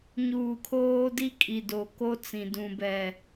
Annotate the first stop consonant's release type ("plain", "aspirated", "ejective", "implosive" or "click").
aspirated